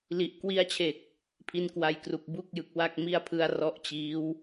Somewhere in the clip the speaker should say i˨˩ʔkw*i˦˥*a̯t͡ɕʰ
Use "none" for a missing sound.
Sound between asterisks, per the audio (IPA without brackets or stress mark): i˧